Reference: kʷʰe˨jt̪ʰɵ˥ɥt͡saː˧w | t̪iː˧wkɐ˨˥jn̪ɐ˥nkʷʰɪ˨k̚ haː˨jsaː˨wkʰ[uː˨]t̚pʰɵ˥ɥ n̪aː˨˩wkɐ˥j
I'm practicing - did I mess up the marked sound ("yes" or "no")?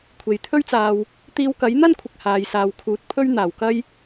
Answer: no